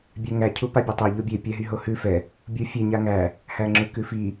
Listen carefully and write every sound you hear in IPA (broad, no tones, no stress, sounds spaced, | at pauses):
bʲ ɛ ŋ æ cʰ u p a bʲ ɛ tˤ æ ʎ o bʲ e pʲ æ ɦ i ɦ o h ʉ f ɛ | bʲ u fʲ e ɲ a ŋ æ | h æ ŋ͡ǁ ʉ k ʉ f i